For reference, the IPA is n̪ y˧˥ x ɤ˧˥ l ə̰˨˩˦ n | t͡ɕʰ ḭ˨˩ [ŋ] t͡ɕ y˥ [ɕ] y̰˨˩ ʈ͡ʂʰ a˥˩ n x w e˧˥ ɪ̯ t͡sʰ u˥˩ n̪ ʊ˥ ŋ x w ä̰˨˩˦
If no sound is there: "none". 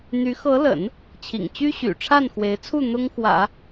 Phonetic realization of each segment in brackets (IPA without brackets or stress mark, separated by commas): ŋ, ɕ